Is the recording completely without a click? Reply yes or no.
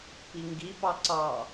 no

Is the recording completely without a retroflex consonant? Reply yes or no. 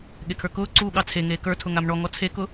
no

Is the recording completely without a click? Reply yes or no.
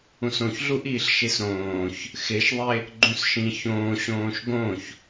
no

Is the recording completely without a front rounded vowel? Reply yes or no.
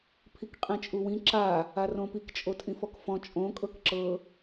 yes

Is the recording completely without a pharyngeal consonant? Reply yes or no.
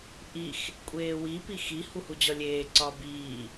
yes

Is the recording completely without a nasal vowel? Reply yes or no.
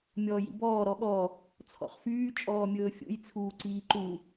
yes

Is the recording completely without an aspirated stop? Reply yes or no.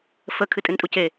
no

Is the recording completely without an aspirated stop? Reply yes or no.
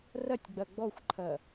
no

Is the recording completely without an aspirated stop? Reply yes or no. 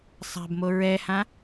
yes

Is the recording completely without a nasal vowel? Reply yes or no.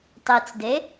yes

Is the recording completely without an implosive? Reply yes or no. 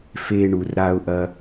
yes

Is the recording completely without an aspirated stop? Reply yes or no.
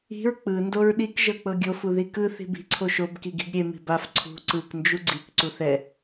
no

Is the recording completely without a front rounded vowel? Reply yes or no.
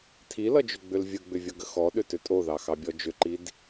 no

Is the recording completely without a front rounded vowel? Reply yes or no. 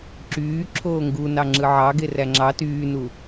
no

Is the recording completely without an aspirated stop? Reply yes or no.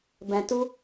yes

